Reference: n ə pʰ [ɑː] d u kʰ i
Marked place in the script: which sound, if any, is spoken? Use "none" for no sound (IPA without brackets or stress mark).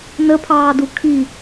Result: ɑː